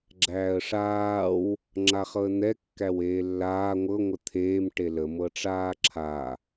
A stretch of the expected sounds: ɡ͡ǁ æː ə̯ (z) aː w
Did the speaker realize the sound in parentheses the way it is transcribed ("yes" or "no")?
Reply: no